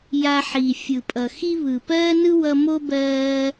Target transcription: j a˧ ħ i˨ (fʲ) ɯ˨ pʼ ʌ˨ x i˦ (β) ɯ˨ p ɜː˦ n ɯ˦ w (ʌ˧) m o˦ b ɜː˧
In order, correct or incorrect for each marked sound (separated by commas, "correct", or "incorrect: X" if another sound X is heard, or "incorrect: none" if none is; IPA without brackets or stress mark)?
correct, correct, correct